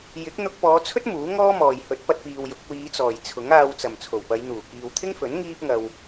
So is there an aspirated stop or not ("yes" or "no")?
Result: yes